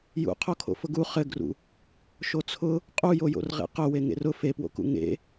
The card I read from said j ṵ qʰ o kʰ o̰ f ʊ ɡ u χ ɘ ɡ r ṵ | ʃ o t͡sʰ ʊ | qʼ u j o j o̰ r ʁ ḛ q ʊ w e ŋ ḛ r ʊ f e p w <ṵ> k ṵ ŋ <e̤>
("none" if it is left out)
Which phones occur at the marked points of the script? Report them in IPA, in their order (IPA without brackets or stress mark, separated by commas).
o̰, ḛ